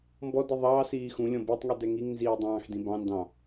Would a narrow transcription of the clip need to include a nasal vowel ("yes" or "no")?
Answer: yes